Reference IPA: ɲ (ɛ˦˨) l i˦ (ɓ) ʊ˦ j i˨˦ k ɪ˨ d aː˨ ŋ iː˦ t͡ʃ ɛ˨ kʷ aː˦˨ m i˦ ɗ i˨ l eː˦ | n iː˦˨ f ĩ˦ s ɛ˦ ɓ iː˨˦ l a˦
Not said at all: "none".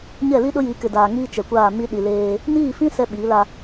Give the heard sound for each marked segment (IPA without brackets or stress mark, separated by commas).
ɛ˦˨, ɗ